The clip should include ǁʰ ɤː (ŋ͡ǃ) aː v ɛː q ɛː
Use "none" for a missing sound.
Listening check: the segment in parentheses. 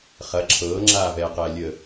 ŋ͡ǁ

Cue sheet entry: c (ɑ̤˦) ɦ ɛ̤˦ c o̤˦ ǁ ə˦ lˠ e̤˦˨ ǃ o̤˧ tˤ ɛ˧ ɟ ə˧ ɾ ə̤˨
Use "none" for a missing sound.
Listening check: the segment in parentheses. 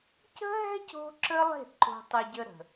ə̤˦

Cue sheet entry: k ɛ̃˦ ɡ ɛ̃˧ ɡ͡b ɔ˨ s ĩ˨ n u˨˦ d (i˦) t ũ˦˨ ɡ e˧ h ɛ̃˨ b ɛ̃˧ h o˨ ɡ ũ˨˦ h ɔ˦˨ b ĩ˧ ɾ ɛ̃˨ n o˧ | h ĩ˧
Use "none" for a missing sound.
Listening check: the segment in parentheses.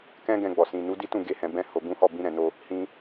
i˦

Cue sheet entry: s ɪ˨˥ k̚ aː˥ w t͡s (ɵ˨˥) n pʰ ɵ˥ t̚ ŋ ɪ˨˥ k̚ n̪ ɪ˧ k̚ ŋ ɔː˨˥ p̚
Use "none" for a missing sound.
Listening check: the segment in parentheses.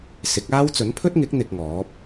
ɵ˨˥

